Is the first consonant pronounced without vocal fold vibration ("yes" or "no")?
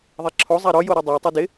no